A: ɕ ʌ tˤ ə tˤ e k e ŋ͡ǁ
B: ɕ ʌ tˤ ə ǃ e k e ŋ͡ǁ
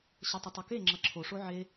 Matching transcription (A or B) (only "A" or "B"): A